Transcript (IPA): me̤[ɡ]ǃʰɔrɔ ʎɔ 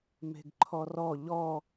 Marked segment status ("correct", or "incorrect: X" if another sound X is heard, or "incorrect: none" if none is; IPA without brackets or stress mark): correct